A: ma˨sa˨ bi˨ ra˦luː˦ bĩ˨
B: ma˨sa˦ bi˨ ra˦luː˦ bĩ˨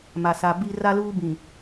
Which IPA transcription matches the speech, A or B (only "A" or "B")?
A